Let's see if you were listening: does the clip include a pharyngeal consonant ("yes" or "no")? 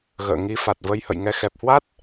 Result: no